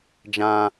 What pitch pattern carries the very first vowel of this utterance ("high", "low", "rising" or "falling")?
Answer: high